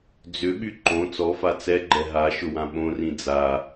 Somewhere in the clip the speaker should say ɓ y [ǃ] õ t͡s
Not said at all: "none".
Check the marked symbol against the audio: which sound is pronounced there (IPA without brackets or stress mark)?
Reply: ǃ